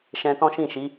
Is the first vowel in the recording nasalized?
yes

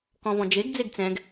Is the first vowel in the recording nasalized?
yes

